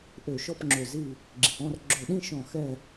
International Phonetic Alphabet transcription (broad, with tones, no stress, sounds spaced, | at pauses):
ʔ ø˧˩ ʃ ɔ˥˧ p ŋ͡ǁ ø˧˩ z i˥˧ | ɡ͡ǁ i˩ ʔ ɔ̃˥˧ r ɡ͡ǁ ɵ˧˩ ɗ ĩ˥˧ ʃ ɔ̃˧˩ x ɛ˥˧